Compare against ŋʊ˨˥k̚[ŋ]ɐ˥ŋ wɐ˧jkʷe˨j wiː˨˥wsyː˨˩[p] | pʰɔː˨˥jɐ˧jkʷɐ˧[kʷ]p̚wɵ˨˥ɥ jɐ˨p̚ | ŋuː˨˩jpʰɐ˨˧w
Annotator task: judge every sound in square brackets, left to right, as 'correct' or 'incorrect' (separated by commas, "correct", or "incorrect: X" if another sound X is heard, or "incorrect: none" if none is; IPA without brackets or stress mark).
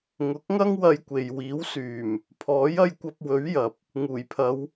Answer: correct, incorrect: m, incorrect: none